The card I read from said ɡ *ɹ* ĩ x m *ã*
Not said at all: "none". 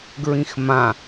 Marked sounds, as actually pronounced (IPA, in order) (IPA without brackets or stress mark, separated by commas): ɹ, ã